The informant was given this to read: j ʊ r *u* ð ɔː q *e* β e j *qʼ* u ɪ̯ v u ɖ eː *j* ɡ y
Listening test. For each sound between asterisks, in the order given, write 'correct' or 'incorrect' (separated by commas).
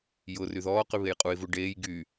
incorrect, incorrect, correct, correct